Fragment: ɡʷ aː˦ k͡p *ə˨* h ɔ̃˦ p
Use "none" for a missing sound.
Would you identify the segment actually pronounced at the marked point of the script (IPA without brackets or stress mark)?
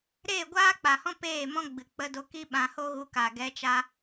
a˨